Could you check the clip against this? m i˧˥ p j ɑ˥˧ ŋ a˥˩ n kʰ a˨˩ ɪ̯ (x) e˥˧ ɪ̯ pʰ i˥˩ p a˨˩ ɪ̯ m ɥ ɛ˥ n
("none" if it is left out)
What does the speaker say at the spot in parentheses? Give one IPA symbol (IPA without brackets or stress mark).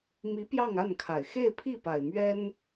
x